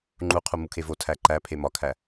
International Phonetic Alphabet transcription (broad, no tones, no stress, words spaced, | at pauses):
ŋ͡ǃuqʰu mukʰevo tʰæǃæ pʰemɒkʰæ